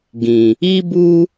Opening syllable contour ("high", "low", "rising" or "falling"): low